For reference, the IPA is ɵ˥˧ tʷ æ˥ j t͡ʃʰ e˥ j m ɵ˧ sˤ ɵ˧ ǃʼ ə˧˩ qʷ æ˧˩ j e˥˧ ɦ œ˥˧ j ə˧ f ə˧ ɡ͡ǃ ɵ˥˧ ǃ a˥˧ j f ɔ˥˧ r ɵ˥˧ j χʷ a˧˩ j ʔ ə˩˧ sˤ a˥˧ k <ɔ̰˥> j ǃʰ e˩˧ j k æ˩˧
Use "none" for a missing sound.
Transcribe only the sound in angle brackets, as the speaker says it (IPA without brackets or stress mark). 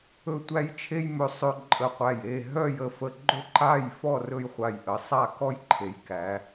ɔ˥